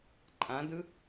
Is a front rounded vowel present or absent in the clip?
absent